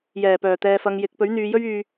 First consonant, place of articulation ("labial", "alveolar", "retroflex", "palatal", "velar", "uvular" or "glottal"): palatal